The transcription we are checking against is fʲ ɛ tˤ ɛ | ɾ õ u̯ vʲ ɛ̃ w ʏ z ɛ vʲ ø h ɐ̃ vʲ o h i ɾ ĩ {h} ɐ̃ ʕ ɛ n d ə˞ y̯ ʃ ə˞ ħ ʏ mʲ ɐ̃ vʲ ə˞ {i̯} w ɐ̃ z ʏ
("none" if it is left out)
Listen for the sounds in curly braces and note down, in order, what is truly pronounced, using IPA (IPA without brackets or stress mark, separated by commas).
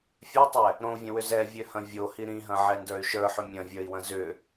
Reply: ɦ, i̯